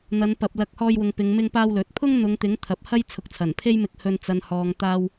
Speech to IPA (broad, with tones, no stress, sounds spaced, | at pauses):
n̪ ɐ˨˧ n p ɐ˨ p̚ l ɐ˨˥ k̚ h ɔː˧ j w ʊ˨ ŋ p ɪ˨˧ ŋ m ɪ˧ ŋ p aː˧ w l ɵ˨˥ t̚ pʰ ʊ˥ ŋ n̪ ʊ˨˧ ŋ t̪ ɪ˨˥ ŋ t̪ʰ ɐ˨˥ p̚ h ɐ˥ j t͡sʰ ʊ˨ k̚ t͡sʰ ɐ˨˩ n pʰ e˥ j m ɪ˧ k̚ h ɵ˧ n t͡s ɐ˨ n h ɔː˨ ŋ t̪ aː˥ w